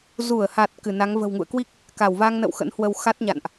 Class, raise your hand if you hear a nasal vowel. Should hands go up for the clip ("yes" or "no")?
no